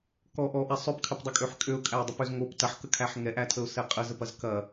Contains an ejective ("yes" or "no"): yes